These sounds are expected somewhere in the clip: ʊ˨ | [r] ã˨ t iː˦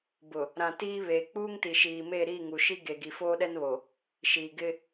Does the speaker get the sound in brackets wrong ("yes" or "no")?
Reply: yes